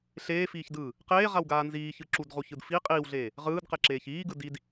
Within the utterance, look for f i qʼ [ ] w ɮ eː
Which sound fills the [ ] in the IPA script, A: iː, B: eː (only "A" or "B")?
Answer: A